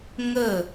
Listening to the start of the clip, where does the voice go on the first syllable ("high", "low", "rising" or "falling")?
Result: falling